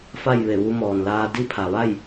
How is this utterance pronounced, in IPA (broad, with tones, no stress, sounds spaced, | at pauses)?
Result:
f a˥˨ j ʋ e˧˩ ʋ u˧ m ɔː˩ n l aː˧ d i˥˨ pʰ a˩ ʋ a˥˨ j